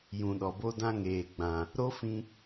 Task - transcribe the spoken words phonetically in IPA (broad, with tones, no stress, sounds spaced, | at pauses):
j ũ˨ ɗ ɔ˨ b o˦ d ã˦ ŋ eː˨ ɡ͡b ã˨ | ɾ o˦ f ĩ˧